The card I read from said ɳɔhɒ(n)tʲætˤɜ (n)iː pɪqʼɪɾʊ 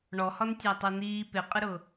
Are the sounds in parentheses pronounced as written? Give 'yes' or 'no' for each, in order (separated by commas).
yes, yes